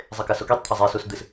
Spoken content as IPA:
zˤ e k a s o k i tˤ t̪ʰ a zˤ e s u s d̪ ɨ s

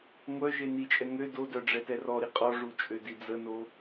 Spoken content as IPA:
ŋʷ œ ʒ e n i t͡ʃʼ ɛ ŋ ø d o d œ ɖ͡ʐ ɛ t ɛ r ɔ ɾ i qʼ ɔ ʐ u t͡ʃʼ ø d i d͡z ə n o

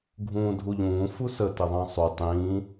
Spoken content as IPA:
ɡʱ ũː dʱ u ʎ ũː f u s ə t ɪ ðˤ ɑ̃ sˤ u tˤ ĩ

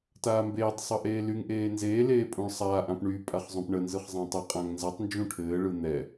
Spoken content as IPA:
t aː m b eː tˤ sˤ ʌ ʔ eː l y ŋ ʔ eː n z eː l eː pʼ ũ ɭ sˤ aː ʔ ã p ɳ y pʼ a χ zˤ õ p ɳ ə n z ɯ χ zˤ ã tˤ ɘ qʼ ã ŋ n z a tˤ n d͡ʒ ũ ʈʰ ɘː ɭ ɯ n̪ ɛ

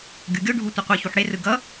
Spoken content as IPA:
ɡʲ u ɡʲ o ɖʱ u tʷ ɯ qʷ ɯ ç u ħ ɽ e r ɯ ɡ ʌ

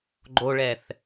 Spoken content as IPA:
ɡ͡ǃ o ɭ ɛ θ

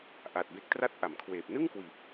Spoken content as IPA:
ʔ a˨˩ t̚ b e˦˥ k̚ t r a˥˩ t̚ ʔ a˩˦ m kʰ w eː˨˩ p̚ n ɯ˥˩ ŋ k w iː˨˩ p̚

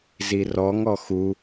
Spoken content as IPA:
z i r ɔ ŋ ɔ x u

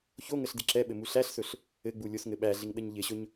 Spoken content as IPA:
ç o ŋ ə ɬ d ɪ ǁ ɛ ɓ ɘ m u ɬ æ ɬ s ɵ ɬ | ɘ ɡ͡b u lʲ o s ŋ ɘ ɓ æ ɮ ɪ ŋ ɗ ə ɲ ʎ ɪ ɕ ɵ ɲ

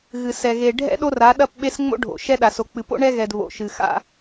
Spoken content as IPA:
ɣ ɨ˨ s ɛ˨ ɣ e˨ ɖʱ ɛ̰˦ ɗ o˦ r a˨˦ ɗ ɐ˦˨ p ɓ e˦ s ŋ͡m o̰˦ ɖʱ o̰˨ ʃ ɛ˦ ɗ a˨ s o˨ k͡p ɨ˨ p o̰˦ ɳ ɛ˦ ɣ ɛ˨ d β o̰˨ ʃ ɨ˨ x a̰˦

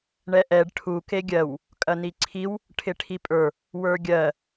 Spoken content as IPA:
ɳ ɛ ʔ ɛ ɖ ʈʰ u k e ɡʲ ɜ w | kʼ ɐ n i ǀʰ i w | ʈʰ ɪ ʈʰ i pʼ ə˞ | w ə˞ ɡʲ ɜ

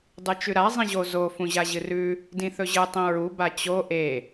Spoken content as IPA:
dˤ ɨ t͡ʃ ʉ ɾ a zˤ ĩ ʑ o z o f ũ ʑ a ʑ ɨ r ʉ | d ĩ θ ɵ ʑ ɨ tˤ ĩ ɹ u b a t͡ɕ o ʔ e

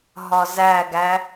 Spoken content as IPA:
ɦ ɒ z æ ɡ æ

